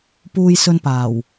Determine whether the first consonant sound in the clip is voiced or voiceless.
voiceless